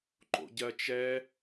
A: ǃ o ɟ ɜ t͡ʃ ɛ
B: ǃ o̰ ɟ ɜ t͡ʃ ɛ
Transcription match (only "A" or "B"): B